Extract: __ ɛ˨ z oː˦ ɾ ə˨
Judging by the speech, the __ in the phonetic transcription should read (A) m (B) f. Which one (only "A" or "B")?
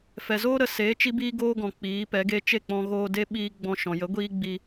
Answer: B